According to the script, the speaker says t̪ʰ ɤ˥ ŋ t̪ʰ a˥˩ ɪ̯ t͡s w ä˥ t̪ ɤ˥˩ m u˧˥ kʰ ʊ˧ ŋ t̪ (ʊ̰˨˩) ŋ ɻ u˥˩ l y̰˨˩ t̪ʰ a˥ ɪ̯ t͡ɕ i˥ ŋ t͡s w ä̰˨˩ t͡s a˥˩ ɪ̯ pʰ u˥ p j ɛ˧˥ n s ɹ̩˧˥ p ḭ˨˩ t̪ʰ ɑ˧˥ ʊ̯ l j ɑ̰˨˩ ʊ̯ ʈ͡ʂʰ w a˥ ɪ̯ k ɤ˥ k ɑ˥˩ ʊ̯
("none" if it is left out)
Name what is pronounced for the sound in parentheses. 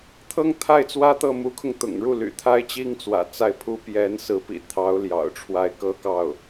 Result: ʊ̰˨˩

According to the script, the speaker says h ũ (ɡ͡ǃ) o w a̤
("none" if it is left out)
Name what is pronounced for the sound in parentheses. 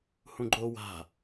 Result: ɡ͡ǃ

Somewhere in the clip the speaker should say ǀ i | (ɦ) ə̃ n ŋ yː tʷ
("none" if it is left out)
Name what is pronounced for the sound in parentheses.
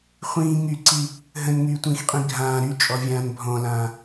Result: ɦ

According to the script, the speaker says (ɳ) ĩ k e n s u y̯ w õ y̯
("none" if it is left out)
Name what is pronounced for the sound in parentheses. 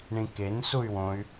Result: ɳ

